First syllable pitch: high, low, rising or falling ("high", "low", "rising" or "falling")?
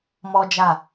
high